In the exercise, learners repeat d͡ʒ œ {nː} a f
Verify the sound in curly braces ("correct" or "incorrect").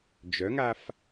incorrect